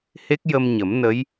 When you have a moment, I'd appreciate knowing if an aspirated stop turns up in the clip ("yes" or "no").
no